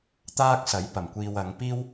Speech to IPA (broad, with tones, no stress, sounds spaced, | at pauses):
t̪ aː˥ k̚ s ɐ˨˥ j p ɐ˨˩ m kʷ iː˨ w ɐ˨˧ ŋ p iː˥ w